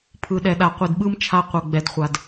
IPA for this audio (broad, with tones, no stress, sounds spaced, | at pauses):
pʰ ɯ˨ ɗ ɛ˨ ɗ a˨ qʷ i˨ d ɓ ɯ˦ m t͡ʃʰ a˦ qʷ ɤ˨ ɡ͡b ɛ˨ d χʷ a˨ d